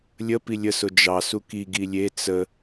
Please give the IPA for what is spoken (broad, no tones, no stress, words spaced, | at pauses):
lʲə pilʲəsʊ d͡ʒɑ suki ɡilʲe t͡sə